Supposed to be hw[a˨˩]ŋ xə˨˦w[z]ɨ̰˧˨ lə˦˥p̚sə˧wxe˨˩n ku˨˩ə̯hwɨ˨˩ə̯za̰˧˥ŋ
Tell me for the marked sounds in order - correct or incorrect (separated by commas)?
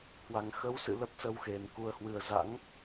correct, incorrect